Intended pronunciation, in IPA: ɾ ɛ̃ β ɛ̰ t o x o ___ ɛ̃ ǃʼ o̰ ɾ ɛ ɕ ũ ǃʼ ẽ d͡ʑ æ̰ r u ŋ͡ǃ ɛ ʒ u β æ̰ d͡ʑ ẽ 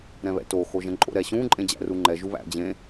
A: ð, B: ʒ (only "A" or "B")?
B